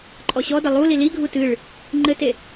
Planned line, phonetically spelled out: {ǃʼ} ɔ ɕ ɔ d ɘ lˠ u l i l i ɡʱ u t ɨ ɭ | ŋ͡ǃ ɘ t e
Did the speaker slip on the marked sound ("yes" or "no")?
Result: no